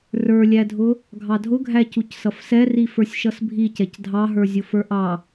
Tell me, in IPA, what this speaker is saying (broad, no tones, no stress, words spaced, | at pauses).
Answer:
rə˞lʲædʱʊ | ɡʱɑdʱʊɡʱæ cucsʌfsɛri fə˞sʲʃʌsbʱicɛc dʱɑɦə˞zʲʊ fə˞ʔɑ